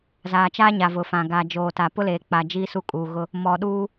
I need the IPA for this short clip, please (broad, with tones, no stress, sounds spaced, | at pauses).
z aː˨ t͡ʃ aː˦ ɲ a˨ v ʊ˨ f ã˨ ɡ aː˨ d͡ʒ oː˨ t a˨ p ʊ˦ l eː˨ k͡p a˨ d͡ʒ iː˦ s u˦ kʼ uː˨ ɣ ʊ˦ | m ɔ˨ ɗ uː˦